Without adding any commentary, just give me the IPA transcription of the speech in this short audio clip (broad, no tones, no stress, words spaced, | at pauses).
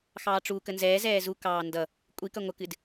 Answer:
xɑːʈ͡ʂukə nzɛːzɛː zukɑː ndʌ | kʷʼiːkʌ ŋʷəkɨd